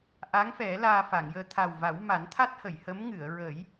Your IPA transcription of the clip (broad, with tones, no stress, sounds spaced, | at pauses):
ʔ a˧˥ ŋ f ɛ˨˩˦ l aː˧ f a˨˩˨ ŋ j əː˧ t̪ʰ a˨˩ w v a˨˩˦ w m a˨˩˦ n t̪ʰ a˦˥ t̚ h ə˨˩˨ j h ə˧˥ m ŋ ɨ˨˩˨ ə̯ ɹ ə˨˩˦ j